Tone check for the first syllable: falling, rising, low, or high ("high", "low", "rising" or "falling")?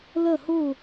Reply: falling